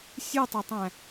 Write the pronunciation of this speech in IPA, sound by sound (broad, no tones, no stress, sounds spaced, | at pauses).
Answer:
sʲ u tˤ a tˤ æ̃